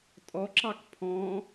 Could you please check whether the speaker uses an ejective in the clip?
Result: yes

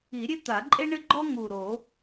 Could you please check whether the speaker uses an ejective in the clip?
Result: yes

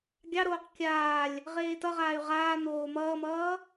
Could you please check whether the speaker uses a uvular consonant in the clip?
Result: yes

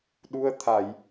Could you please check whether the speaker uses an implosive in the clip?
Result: yes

